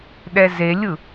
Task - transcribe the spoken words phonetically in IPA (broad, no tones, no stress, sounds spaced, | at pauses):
ɗ ɛ z e lʲ ɯ